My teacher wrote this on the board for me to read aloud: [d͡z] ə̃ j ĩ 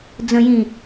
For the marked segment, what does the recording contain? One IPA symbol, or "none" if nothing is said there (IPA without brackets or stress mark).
d͡z